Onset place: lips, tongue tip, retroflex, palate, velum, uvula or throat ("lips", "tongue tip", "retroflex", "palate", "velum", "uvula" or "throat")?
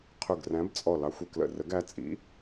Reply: uvula